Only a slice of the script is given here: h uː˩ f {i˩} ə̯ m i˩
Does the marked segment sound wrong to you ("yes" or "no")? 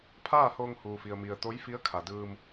no